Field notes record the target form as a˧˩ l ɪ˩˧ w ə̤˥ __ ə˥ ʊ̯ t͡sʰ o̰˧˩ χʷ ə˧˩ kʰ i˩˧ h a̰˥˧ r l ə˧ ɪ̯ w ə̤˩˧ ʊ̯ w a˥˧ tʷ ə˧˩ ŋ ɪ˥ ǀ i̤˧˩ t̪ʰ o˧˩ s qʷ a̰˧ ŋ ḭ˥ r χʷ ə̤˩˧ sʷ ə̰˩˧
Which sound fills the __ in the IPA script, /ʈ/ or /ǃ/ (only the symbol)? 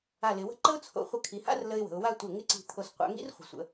ǃ